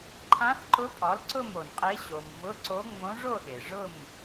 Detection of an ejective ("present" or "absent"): present